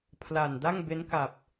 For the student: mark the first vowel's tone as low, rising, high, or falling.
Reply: low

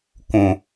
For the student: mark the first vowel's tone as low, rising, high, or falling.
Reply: low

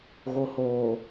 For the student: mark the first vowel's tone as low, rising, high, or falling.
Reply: low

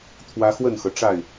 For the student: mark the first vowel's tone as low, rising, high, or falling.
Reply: high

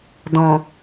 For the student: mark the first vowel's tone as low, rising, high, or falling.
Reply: low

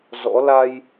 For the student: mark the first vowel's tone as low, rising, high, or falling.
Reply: rising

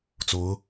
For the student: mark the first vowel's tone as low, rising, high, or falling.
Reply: rising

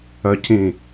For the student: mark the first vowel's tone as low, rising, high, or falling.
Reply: low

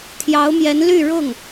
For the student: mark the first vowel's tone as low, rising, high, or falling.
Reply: rising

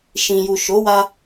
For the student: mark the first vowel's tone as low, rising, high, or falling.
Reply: low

